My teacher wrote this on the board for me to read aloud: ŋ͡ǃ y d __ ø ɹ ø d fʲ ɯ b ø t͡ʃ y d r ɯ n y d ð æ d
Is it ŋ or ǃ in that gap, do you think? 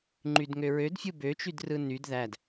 ŋ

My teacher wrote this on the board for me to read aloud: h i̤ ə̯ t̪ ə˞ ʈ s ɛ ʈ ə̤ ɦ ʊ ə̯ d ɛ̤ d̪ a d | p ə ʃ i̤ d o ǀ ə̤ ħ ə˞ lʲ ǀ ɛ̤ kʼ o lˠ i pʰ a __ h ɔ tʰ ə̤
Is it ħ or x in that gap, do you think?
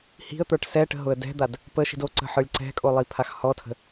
x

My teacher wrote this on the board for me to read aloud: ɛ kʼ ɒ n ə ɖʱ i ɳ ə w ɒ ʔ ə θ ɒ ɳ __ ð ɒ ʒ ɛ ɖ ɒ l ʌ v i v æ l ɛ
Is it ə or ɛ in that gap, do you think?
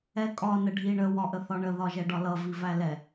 ə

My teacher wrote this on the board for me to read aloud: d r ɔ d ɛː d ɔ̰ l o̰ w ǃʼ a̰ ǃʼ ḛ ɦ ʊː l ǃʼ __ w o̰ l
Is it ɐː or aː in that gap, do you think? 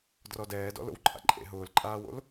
aː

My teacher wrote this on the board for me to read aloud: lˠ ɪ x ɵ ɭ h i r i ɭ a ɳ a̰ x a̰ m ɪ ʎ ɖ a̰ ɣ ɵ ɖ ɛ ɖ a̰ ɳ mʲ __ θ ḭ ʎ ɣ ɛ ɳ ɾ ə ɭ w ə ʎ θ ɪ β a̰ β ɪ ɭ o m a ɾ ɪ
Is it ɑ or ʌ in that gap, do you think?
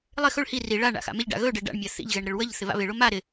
ɑ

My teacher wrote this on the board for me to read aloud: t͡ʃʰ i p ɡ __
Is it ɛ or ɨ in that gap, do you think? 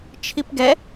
ɛ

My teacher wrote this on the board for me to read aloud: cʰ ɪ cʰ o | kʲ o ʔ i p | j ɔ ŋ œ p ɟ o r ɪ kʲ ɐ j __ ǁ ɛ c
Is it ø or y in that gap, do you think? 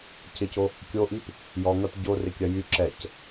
y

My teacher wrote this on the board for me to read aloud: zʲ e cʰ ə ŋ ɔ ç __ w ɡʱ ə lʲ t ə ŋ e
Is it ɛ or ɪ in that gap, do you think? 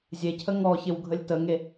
ɪ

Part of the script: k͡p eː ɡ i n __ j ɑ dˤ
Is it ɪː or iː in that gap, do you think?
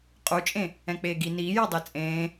iː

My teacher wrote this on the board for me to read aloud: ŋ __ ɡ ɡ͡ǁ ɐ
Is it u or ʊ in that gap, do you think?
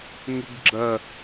ʊ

